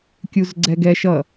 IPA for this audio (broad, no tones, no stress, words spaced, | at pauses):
kʲuzɡ͡ǀɛɡɛ ʃʌ